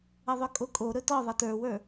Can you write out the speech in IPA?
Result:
əðˤɵkʼokʼo ɾɵtɔ ðˤɜtə˞wə˞

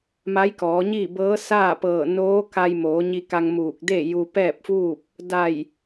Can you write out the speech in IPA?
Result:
ma˧˥jkɔː˩˧ɲiː˥˨bɤː˧˥ saː˥˨pɤː˧˩ noː˧˥ka˧jmoː˩˧ ɲi˧ka˧ŋ muː˧˩k̚de˥˨ ju˧pɛː˥˨p̚fuː˥˨p̚ | da˧˩j

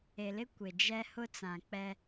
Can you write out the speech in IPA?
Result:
e˨lɪ˦ kʷɪ˨d͡ʒɛ˦ hʊ˦t͡sã˨k͡pɛ˦

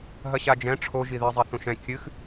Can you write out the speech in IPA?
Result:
ɦɐɕad͡ʒɛ̃ ʈ͡ʂʰoʒi ðɘzˤiθũʃ ɛ̃ kʲɨx

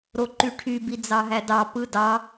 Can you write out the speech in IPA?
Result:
ɾoǃyʈʰy bid͡zɑɦædɑ pɯdɑ

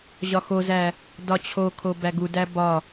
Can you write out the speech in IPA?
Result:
ʑɒxozæ | dɒt͡ɕʰokʰo bæɡudæ bɒ

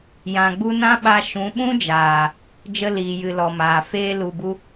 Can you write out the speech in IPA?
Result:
jã˨ɡ͡bu˧ nã˦ɓa˧ ʃũ˨˦ɓũ˦d͡ʒaː˨ | d͡ʒə˧liː˨jɨ˨ lɔ˨maː˨ feː˧lu˨bu˧

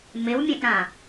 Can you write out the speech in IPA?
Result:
mɪwmʲẽʔɾã

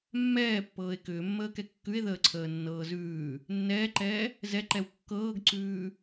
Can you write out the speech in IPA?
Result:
mːɛːpːɤːe̯ kʏːmːəːkɛ kːʉe̯ðəːǀʰəːnːɤː zʉː | nːɛːǃɛː | zɛǃɛw kːɤːɡǀʉː

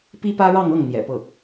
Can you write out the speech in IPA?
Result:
pi˥pä˥ɻɑ˥˧ŋɤ˥˩ŋ n̪jɛ̰˨˩pɤ˥˩

